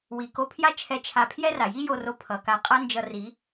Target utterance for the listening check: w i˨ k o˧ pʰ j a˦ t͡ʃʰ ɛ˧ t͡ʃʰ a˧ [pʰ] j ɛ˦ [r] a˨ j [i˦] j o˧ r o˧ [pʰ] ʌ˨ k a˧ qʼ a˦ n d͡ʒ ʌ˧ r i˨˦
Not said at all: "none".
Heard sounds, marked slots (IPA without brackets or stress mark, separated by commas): pʰ, r, i˦, pʰ